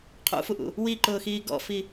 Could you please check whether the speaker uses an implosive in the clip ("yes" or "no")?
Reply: no